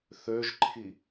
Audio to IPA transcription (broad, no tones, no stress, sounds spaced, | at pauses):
θ ø ʒ ǃʰ i